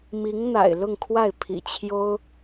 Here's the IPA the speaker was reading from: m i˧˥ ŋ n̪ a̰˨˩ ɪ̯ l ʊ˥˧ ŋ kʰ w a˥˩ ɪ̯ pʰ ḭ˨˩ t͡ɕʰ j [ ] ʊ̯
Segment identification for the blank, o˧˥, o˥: o˥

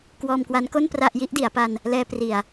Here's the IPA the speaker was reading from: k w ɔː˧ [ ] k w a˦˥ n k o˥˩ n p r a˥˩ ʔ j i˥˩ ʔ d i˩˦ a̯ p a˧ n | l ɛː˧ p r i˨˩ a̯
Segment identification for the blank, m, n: m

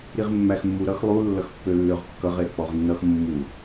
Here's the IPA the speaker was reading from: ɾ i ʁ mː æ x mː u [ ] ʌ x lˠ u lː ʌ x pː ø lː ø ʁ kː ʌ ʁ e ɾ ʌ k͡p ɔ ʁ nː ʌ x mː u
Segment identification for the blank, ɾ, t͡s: ɾ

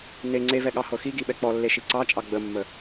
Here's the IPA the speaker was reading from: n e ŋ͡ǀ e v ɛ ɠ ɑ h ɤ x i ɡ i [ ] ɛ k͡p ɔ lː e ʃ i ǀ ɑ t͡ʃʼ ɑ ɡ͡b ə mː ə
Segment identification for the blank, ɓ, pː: ɓ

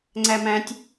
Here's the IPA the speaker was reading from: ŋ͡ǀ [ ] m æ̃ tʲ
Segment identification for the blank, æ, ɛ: æ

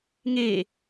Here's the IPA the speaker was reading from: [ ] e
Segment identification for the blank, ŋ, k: ŋ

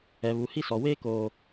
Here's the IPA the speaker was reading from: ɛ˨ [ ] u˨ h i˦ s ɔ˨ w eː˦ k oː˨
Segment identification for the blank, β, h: β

